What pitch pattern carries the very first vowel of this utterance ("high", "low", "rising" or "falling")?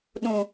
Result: low